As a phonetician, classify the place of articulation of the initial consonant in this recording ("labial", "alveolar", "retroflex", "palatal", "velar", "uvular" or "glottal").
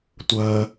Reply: alveolar